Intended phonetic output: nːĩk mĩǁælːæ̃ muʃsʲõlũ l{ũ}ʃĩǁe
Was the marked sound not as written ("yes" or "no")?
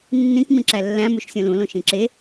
yes